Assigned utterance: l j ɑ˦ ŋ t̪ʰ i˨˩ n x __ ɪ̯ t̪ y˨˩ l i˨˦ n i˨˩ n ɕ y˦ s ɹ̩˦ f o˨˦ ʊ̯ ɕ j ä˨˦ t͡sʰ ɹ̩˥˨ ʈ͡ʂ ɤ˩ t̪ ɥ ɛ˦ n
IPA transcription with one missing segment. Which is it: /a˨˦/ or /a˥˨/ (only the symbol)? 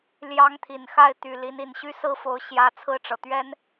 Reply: a˥˨